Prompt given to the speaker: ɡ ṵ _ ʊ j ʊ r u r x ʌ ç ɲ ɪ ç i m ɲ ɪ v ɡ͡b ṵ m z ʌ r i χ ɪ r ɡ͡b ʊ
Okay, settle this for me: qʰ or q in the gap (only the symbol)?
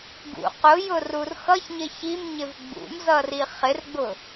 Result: q